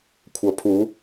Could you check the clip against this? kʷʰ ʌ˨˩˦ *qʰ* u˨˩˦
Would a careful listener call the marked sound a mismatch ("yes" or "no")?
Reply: yes